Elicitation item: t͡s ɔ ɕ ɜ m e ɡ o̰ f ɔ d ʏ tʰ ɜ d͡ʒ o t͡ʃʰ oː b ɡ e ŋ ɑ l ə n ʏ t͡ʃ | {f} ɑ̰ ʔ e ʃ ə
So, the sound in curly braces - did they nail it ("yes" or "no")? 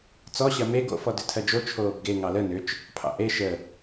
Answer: no